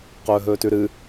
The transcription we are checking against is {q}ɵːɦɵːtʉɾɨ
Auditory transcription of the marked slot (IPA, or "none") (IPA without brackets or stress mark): q